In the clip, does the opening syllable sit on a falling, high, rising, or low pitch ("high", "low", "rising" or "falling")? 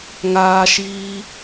high